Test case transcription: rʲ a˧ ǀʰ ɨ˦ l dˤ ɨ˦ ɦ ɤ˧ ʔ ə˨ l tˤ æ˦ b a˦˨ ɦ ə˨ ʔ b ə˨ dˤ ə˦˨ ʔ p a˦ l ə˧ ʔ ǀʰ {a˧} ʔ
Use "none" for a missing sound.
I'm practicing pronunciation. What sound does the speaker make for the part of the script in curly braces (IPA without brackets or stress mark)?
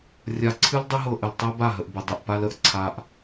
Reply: a˧